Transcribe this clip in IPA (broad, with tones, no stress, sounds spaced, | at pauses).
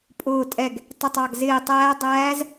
pʼ ʊː˧˩ tʼ ɛ˧˩ ɡ | tˤ ɪ˧˩ tˤ ɑ˧˩ ɡ z ɪː˧˩ tˤ æː˧˥ dˤ æː˧˥ z